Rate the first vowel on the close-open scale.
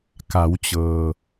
open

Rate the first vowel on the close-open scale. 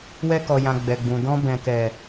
mid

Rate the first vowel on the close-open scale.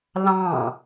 open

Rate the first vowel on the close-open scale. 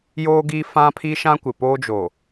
mid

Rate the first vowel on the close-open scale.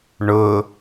close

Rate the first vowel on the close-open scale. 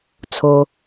mid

